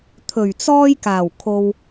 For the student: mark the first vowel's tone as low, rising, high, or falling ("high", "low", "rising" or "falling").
low